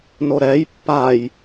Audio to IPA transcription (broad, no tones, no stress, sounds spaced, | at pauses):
n o ɾ ɛ j pː a j